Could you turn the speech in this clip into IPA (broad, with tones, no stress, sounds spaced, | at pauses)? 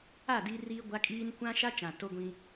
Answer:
a˦˨ d i˦ r iː˦ ɡʷ a˦ kʼ iː˦ n kʷ ã˦ ʃ a˦ t͡ʃ ã˨ t o˦ ɡʷ ĩ˦